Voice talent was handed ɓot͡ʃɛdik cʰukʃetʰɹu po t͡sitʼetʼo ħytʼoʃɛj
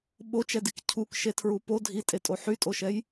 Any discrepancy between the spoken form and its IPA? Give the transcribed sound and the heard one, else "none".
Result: t͡s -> dʱ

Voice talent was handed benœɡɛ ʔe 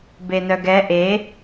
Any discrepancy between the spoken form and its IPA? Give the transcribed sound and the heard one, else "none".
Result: none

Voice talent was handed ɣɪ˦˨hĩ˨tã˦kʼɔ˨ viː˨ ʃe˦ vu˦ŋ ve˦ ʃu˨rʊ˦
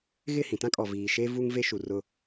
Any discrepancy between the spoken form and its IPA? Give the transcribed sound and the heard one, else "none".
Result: none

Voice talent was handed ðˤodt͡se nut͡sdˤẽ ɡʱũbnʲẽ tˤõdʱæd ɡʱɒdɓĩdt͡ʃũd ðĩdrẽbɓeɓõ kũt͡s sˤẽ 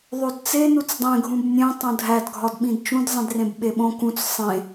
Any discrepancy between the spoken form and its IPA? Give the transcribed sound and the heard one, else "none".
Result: ð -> zˤ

